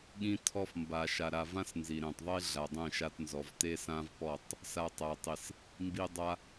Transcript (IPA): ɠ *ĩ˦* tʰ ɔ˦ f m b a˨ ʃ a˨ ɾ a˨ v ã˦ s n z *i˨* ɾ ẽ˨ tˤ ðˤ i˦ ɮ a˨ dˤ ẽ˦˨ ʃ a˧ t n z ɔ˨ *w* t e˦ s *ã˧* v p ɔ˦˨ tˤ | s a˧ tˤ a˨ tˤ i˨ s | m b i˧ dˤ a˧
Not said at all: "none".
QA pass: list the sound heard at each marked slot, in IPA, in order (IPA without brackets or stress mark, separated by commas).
ĩ˦, i˨, v, ã˦